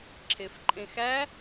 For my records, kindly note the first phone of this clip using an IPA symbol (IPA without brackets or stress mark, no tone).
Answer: ǁʰ